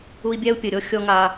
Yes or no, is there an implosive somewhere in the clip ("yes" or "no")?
no